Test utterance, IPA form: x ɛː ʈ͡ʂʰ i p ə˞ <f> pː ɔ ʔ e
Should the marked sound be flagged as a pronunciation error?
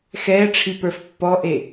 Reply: no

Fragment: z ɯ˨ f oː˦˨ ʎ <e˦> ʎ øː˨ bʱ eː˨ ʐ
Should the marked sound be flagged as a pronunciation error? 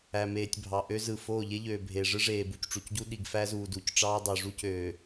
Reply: no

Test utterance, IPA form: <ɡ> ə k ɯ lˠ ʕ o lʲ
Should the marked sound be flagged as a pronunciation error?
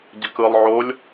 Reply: yes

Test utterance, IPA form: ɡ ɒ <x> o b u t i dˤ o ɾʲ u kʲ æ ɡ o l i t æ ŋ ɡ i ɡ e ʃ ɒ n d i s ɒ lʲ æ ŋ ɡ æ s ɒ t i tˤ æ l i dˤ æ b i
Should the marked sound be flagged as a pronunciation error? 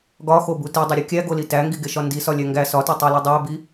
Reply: no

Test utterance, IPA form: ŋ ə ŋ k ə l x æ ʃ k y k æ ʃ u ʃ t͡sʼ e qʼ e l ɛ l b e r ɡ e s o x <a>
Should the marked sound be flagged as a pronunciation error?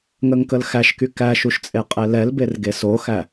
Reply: yes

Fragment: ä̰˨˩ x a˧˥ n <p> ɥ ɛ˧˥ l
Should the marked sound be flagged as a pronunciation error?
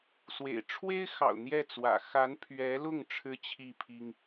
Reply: yes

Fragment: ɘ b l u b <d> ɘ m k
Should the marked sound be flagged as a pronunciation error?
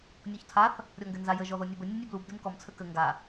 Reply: no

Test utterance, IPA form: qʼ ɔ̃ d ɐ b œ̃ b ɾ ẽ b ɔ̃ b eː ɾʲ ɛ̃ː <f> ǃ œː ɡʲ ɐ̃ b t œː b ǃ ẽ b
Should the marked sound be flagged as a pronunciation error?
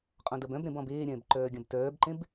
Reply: yes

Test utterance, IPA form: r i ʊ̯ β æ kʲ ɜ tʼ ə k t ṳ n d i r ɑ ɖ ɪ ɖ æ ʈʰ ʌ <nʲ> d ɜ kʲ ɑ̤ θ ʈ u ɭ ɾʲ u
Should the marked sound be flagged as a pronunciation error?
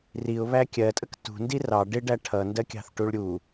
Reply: yes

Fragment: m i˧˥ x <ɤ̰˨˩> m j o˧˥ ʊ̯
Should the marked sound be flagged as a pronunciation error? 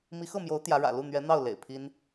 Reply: yes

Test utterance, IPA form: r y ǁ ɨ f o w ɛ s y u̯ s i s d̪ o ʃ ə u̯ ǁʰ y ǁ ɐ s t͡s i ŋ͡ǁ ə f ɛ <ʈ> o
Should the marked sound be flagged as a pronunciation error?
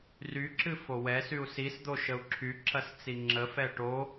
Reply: no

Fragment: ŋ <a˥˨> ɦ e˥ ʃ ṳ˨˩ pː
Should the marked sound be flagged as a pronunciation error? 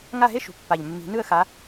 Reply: no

